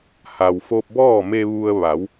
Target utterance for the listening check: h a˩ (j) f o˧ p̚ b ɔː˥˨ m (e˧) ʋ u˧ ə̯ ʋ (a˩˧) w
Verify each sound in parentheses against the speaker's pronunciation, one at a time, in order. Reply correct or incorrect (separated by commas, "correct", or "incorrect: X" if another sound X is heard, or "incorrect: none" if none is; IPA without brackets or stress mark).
incorrect: w, correct, correct